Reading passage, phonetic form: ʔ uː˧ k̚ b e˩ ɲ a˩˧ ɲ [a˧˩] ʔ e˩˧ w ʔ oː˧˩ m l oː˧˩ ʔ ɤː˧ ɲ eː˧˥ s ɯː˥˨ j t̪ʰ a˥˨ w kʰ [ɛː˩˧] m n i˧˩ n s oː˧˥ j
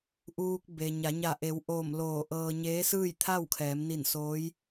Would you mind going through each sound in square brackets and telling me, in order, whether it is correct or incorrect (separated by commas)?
correct, correct